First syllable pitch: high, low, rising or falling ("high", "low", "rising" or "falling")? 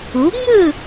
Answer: rising